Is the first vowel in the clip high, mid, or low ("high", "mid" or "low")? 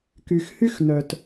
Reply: high